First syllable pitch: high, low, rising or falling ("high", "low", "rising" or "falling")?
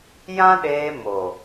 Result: high